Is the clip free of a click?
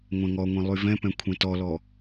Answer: yes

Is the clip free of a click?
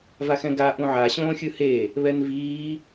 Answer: yes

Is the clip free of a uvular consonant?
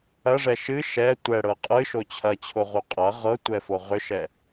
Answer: no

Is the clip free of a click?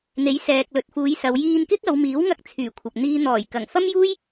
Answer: yes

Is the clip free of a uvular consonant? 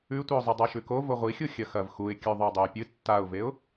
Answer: no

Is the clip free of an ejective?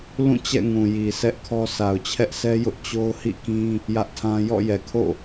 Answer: yes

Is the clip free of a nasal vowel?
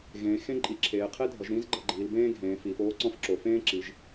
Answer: no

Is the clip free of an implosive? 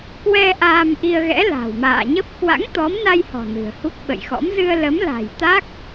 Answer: no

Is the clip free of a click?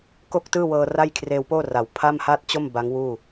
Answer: yes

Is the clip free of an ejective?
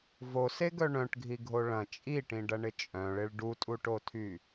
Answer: no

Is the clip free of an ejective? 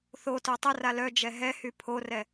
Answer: yes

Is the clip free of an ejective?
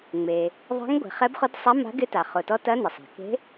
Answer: yes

